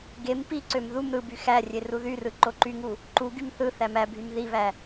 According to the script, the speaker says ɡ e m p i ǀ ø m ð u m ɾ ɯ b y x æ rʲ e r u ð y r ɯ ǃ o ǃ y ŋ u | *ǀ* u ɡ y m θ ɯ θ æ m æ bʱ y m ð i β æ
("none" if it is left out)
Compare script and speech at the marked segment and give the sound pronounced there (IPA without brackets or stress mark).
ǃ